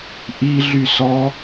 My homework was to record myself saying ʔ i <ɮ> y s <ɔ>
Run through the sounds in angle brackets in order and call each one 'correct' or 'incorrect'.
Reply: correct, correct

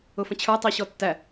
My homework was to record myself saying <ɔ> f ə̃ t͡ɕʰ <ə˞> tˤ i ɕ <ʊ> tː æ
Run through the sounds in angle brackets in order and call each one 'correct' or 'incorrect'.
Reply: incorrect: ʊ, correct, incorrect: ɔ

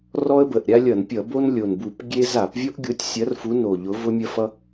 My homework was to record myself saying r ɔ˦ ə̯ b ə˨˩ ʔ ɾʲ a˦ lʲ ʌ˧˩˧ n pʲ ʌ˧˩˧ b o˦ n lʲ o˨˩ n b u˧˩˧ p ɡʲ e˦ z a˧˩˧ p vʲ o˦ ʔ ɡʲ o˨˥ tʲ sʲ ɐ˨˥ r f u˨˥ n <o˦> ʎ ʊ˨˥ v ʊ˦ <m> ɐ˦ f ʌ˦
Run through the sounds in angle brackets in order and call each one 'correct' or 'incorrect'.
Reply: incorrect: o˨˩, incorrect: mʲ

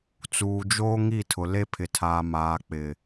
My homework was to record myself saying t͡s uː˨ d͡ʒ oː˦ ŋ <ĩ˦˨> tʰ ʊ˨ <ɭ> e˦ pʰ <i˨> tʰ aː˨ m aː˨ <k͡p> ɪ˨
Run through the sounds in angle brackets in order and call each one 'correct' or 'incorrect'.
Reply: incorrect: i˦˨, incorrect: l, incorrect: ɪ˨, correct

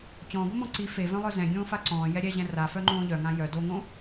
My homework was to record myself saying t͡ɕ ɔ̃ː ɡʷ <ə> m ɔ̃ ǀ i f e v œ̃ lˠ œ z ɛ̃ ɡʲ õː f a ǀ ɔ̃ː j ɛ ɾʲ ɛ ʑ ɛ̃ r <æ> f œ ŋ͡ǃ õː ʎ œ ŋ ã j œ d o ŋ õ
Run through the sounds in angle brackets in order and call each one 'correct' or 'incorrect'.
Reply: correct, incorrect: a

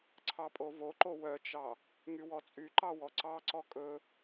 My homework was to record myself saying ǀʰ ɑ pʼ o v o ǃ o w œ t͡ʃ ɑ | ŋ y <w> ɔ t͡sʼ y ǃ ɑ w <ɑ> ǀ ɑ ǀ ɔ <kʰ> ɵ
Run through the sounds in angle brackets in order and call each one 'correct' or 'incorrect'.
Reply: correct, incorrect: ɔ, incorrect: kʼ

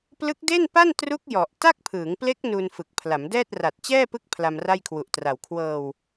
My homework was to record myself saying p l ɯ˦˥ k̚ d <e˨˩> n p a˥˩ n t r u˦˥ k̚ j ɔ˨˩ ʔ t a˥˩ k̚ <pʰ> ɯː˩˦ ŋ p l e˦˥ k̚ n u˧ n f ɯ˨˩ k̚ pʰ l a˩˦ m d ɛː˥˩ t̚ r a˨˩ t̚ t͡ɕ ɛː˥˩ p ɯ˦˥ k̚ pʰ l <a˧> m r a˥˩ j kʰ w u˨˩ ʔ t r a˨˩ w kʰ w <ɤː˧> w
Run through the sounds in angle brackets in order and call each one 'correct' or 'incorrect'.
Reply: incorrect: e˥˩, correct, correct, correct

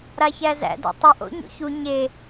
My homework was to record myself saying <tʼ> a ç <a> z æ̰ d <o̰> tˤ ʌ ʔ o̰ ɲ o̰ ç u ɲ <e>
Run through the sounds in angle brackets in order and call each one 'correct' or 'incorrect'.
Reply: incorrect: ɾ, incorrect: æ, correct, correct

